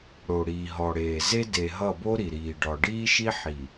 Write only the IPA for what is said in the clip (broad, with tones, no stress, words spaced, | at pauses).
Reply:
ɽo˨ ɽiː˨ɦɔ˨ɽeː˨ ze˦de˨ ɦʌ˦˨bo˦ɾi˨ ɾiː˨ɖɒ˨ ɖiː˦ʃi˦ħi˨